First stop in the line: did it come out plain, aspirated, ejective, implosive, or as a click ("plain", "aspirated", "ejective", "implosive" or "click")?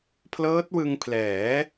aspirated